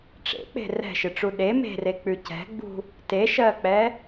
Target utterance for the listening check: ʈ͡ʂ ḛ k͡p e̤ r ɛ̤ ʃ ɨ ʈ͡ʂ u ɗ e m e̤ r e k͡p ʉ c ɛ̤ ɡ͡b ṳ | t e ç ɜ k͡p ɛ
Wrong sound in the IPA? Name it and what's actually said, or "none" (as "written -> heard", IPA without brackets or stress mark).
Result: ç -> ʃ